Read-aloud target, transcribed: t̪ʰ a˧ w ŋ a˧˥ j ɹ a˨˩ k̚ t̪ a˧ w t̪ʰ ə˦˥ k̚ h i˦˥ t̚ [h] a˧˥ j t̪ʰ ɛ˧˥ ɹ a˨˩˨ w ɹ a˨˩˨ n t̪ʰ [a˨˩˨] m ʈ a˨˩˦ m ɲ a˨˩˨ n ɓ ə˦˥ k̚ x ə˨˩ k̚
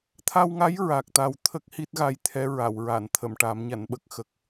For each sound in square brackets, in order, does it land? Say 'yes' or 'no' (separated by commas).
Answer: no, no